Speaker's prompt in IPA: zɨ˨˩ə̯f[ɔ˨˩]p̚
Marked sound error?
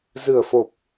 yes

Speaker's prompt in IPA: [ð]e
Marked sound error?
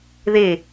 no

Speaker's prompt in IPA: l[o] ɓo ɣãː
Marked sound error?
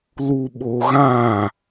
yes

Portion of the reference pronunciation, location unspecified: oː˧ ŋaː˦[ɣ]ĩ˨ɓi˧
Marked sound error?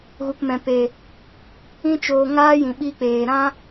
yes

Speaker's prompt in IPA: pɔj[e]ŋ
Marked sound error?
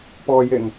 no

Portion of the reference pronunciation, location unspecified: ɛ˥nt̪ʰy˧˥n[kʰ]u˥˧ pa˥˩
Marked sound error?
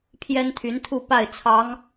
yes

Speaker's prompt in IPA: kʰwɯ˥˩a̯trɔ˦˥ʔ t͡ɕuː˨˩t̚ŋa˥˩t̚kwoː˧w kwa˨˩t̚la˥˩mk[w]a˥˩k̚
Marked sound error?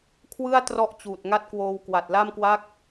no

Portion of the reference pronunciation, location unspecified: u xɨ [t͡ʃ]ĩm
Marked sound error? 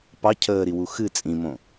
yes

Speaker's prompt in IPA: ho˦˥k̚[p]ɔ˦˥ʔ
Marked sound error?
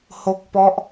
no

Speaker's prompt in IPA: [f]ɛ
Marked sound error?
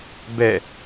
yes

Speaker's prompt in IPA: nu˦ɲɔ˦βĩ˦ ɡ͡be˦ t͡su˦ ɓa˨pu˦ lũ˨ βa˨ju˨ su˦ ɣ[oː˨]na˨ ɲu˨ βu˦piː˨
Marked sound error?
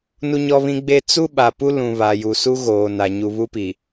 no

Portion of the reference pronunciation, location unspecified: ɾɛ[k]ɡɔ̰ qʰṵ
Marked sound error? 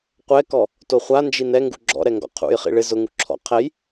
yes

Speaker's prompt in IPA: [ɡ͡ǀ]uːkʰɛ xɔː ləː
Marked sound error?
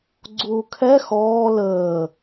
no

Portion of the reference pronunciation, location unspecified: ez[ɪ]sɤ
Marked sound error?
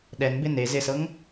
no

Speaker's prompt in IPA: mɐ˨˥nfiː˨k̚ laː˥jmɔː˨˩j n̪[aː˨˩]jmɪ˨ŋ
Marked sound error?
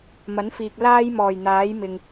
yes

